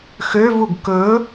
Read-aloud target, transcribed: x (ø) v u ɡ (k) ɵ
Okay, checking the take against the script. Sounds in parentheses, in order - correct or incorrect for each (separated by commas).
correct, correct